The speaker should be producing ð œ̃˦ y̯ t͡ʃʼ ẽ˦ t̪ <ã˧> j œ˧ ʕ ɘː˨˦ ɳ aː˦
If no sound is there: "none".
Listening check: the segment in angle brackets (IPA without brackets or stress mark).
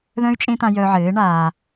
ã˧